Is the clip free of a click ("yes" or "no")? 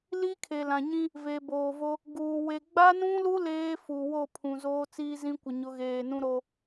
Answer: yes